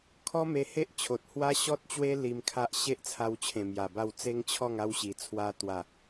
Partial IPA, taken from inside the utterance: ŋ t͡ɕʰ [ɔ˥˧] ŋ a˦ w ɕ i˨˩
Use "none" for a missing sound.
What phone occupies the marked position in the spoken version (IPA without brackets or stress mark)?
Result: ɔ˥˧